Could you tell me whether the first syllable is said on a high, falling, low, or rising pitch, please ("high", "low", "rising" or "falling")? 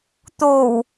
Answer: low